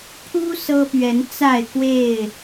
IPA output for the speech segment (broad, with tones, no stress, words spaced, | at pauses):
pʰu˦ sɤ˦pɥɛ˨˦nt͡sa˥˨ɪ̯kwe˥˨ɪ̯